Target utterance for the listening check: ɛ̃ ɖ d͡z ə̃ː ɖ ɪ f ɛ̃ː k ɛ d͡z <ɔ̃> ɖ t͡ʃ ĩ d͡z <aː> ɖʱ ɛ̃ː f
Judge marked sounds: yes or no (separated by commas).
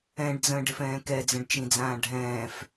no, no